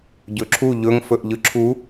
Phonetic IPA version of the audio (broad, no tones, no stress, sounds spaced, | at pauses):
ɟ ɵ ǁʰ u ʎ ɵ ŋ f ɵ ʔ ʎ ɯ ǁʰ u